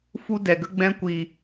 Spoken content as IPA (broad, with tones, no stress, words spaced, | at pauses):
fu˦dɛ˨ɡə˦ ɡ͡bɛ̃˧kʷiː˨